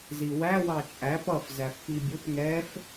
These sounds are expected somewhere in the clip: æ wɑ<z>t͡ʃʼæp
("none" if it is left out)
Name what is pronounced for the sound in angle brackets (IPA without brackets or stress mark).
none